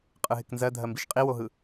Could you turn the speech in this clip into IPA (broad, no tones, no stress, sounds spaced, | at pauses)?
qʼ ɯ ɦ ɪ k n z ɜ dʱ ɜ m b i ʃ qʼ i w o ɦ ɯ